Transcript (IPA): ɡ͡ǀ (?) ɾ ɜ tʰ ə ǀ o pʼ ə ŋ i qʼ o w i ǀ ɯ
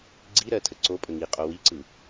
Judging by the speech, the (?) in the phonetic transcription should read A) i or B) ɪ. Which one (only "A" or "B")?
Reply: A